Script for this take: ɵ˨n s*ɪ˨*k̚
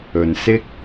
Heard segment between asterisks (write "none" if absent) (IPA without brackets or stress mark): ɪ˥